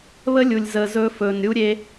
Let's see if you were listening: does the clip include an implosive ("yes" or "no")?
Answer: no